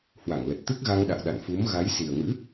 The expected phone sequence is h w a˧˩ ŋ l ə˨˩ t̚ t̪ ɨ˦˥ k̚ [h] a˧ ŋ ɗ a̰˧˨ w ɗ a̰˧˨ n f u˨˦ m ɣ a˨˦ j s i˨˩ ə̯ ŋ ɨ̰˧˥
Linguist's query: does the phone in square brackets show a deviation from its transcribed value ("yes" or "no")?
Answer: yes